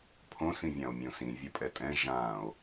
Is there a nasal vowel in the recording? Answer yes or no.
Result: yes